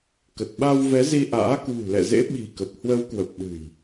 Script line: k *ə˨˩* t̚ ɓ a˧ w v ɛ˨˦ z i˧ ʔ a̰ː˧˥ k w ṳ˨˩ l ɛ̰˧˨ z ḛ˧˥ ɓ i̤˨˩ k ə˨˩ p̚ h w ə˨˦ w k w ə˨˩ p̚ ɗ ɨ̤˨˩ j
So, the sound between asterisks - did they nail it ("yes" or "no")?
yes